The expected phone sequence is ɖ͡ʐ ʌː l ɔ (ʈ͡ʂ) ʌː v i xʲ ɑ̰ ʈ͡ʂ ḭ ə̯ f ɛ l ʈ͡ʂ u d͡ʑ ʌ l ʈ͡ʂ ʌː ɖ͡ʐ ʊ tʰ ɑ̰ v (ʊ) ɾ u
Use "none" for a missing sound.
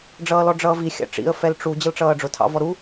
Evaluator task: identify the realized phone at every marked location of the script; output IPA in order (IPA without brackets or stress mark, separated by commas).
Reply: ɖ͡ʐ, ɔ